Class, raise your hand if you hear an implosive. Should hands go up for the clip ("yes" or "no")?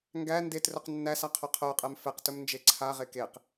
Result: no